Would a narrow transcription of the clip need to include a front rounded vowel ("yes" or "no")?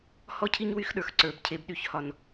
yes